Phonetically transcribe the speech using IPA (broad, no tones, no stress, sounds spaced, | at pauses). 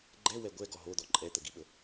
ɡ͡ǃ ɛ w ɛ ɡʷ ɛ ɡ ɔ ɦ o d̪ ɔ ǃʼ ɛ t̪ ə ɡ i ɓ ə